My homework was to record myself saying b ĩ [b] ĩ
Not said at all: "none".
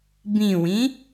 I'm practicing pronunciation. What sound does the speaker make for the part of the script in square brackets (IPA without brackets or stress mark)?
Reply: w